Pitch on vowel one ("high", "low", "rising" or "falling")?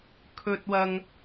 high